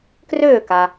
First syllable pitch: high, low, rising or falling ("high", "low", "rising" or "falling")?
falling